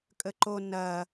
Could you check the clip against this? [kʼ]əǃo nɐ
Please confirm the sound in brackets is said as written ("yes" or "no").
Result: yes